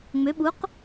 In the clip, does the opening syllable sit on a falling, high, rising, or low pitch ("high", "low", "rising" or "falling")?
rising